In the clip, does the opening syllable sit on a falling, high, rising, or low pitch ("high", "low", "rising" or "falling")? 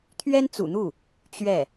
high